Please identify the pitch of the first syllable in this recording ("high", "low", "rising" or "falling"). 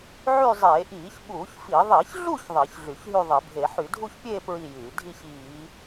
falling